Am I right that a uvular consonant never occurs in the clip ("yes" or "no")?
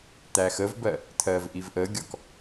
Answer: yes